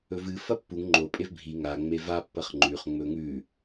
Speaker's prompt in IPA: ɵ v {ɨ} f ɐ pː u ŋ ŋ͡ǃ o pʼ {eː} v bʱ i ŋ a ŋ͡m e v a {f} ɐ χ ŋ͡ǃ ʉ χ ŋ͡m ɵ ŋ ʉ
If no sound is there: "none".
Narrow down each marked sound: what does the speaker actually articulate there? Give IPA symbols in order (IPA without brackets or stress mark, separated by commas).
ɨ, e, pː